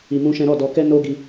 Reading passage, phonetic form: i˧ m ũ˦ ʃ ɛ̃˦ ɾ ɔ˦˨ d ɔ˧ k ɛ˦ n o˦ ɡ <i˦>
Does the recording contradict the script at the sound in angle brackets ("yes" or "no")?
yes